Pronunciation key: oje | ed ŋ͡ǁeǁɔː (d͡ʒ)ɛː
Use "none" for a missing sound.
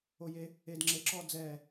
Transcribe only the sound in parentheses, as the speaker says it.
d͡z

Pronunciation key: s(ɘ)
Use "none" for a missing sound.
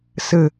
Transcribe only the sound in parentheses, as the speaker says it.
ɘ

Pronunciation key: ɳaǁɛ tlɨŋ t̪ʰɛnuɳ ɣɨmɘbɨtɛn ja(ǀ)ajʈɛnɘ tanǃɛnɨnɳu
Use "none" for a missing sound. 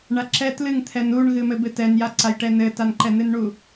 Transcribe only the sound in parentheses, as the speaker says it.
ǀ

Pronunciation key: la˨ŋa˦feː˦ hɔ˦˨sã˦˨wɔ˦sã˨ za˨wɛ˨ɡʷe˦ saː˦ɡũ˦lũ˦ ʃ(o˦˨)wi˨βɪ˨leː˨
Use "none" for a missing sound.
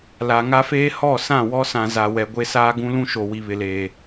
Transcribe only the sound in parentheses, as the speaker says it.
o˨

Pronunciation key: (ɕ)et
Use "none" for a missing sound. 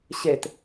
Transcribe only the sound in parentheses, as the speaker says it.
ɕ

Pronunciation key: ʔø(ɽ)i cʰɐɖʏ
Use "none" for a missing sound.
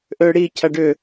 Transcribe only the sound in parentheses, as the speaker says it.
ɽ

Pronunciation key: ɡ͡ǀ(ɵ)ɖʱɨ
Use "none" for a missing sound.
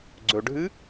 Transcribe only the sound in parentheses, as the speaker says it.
ɵ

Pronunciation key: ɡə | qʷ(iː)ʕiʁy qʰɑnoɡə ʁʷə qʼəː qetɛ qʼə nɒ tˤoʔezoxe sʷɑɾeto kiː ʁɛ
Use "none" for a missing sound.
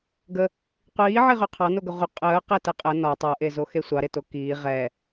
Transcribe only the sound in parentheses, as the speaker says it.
iː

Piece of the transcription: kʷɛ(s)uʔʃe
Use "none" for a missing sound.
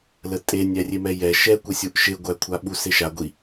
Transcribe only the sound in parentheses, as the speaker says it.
sʲ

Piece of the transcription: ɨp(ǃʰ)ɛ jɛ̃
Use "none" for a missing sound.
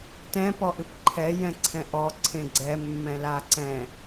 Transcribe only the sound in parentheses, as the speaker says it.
ǃʰ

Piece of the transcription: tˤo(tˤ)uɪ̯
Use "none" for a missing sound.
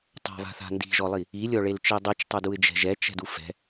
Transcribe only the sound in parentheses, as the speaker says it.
d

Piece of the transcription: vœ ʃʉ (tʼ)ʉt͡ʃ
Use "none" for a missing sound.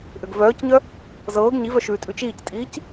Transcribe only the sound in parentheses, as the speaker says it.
tʼ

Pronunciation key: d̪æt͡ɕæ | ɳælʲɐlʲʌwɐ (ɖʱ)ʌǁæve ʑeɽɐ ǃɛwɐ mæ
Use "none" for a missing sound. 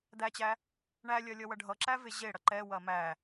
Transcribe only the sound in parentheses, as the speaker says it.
ɖʱ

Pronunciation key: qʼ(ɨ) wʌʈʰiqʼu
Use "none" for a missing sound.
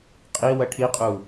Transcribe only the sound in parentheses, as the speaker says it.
i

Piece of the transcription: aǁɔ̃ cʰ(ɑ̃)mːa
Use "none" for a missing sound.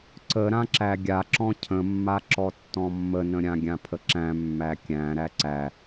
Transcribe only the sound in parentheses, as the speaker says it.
ə̃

